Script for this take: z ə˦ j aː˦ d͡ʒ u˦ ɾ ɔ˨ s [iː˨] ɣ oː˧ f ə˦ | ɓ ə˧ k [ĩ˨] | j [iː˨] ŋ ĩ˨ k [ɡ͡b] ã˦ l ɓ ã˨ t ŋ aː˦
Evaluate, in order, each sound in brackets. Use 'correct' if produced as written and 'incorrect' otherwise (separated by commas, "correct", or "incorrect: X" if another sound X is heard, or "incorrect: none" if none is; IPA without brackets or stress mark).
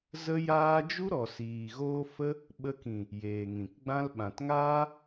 correct, correct, incorrect: eː˨, correct